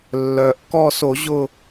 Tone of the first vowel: low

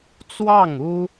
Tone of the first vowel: falling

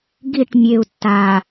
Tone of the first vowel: falling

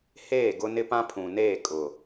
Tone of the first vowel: falling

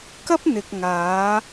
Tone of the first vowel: high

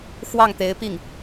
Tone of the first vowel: falling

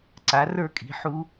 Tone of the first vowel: rising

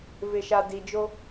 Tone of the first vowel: low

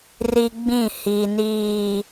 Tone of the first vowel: high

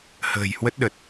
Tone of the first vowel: low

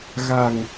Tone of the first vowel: low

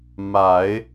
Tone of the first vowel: low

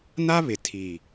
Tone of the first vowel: high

